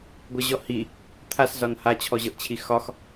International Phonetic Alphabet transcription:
ɡʷ ɤ ʑ ɔ h i | t̪ʰ a s z ɒ n h a t͡ɕʰ ɔ ʑ ɤ ʔ t͡ɕʰ i x ɒ x

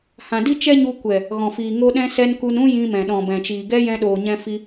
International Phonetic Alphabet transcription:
h ã˨ d i˦ t͡ʃ ɛ˦ ɲ u˧ kʷ ɛ˨ | ɣ ɔ̃˨ f iː˨ ŋ o˦ ɗ ɛ̃˧ s ɛ˧ n k u˧ n ũ˦ j ĩ˧ m ɛ̃˨ ɗ ɔ̃˨ b ɛ̃˨ t͡ʃ iː˨ ɡ ɛ˧ j ɛ̃˧ ɗ oː˨ ɲ ɛ̃˧ f i˧

